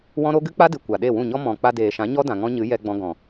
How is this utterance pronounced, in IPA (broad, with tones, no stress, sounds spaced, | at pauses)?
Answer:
w ɔ̃˦ ɾ o˦ ɡ ɨ˦ k͡p a˦ d ɨ˨ kʷ a˨ ɗ e˦˨ w ũ˦˨ ɲ ɔ˦ m ɔ̃˨ k͡p a˧ d eː˨ ʃ ã˨˦ ɲ ɔ˦ d ã˨ ŋ ɔ̃˦ ɲ ɨ˨˦ j ɛ˧ ɡ͡b ɔ̃˧ ɡ ɔ̃˨